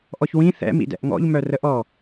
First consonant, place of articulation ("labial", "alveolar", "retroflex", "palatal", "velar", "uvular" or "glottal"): glottal